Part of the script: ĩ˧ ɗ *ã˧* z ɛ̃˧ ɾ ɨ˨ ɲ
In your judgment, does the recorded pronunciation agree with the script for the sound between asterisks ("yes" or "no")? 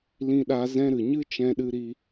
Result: no